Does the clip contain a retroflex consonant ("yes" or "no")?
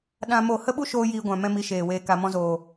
no